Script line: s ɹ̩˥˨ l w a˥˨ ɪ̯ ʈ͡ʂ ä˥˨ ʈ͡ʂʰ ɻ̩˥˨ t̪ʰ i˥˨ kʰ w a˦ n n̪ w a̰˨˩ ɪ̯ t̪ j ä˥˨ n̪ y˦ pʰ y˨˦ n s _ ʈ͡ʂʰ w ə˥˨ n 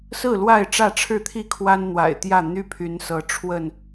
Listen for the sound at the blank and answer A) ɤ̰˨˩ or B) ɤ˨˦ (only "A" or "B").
B